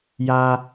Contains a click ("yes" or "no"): no